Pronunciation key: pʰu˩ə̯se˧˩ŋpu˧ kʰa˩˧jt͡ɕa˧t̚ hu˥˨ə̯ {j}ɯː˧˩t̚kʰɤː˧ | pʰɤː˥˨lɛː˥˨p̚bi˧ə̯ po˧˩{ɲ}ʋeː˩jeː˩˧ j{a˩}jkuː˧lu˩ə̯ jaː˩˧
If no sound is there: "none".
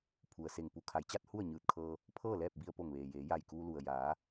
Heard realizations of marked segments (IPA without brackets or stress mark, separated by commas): ɲ, ŋ, a˧˩